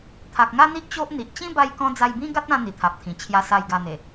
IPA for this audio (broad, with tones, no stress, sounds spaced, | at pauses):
t̪ʰ a˨ k̚ ŋ a˦ n̪ i˦ ʔ t͡ɕ o˦ ʔ n̪ i˨ ʔ t͡ɕ ĩ˦ b a˧ j k ɔ̃˧ d͡z a˧ j b ĩ˦ ɡ a˦ t̚ ã˧ n̪ i˨˩ t̪ʰ a˨ p̚ t̪ʰ ĩ˨˩ t͡ɕʰ j a˧ s a˥˧ j ɡ a˥˧ n̪ e˨˩